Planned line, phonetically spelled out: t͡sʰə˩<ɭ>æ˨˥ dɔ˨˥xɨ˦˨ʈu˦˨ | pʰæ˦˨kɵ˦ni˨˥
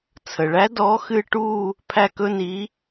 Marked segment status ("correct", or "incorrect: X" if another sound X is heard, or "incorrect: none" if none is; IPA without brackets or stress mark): correct